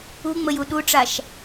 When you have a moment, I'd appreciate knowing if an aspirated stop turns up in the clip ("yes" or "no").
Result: no